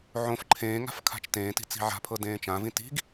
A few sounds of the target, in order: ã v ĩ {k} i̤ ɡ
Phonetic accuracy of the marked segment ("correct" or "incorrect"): incorrect